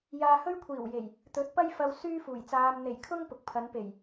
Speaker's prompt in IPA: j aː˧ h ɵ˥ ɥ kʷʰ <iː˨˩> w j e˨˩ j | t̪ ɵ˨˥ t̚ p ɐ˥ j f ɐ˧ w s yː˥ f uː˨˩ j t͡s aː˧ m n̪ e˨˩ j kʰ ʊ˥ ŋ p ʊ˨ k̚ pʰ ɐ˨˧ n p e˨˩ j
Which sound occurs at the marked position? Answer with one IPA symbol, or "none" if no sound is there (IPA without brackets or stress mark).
iː˨˩